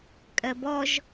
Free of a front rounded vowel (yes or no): yes